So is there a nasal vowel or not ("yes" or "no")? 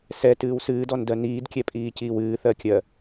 no